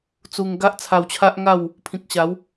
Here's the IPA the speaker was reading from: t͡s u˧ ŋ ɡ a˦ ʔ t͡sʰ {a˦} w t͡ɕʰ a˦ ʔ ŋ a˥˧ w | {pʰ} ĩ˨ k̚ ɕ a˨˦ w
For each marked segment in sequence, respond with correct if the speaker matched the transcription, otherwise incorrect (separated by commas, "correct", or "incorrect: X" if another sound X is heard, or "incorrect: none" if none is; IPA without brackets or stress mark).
incorrect: a˧, correct